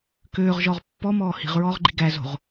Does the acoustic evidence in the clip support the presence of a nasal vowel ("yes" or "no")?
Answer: no